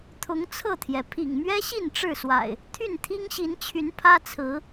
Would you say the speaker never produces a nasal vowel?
yes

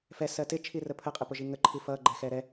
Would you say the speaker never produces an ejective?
no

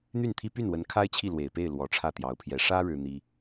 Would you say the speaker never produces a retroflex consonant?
no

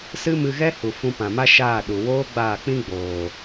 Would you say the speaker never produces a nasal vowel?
no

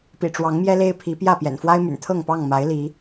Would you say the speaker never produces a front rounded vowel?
no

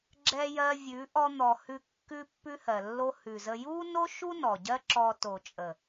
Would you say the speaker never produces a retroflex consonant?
yes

